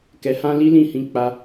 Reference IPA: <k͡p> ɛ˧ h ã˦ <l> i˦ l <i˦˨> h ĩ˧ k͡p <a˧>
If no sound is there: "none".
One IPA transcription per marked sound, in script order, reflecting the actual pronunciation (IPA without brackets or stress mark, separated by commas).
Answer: k, l, ĩ˦˨, a˧